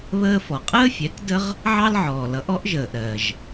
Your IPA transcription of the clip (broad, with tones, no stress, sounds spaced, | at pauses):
β əː˧ f ɔ˩ qʼ əː˥ fʲ ɛ˩˥ k d ə˥ ʁ | ʕ ɑ˥ l ʕ ɔː˩ l ʌ˩˥ ʔ ɔ˩˥ ʔ ʒ əː˩ ʔ ɾ ɜ˩ ʒ